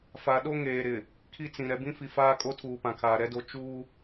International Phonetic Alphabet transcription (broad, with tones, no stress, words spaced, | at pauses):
fa˨ɗo˦ ŋeː˨ɾɪ˨ | kʰi˦t͡sĩ˨ ɾɛ˨bĩ˦fi˨ faː˦kʼo˦tʰuː˨pã˨ kʰaː˨ɾɛ˦do˦ t͡ʃuː˦